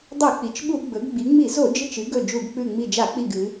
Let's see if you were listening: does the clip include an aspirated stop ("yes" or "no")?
no